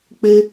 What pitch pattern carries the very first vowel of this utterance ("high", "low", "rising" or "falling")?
high